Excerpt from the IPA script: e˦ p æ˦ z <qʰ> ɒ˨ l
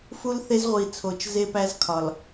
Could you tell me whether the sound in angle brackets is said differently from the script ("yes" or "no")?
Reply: yes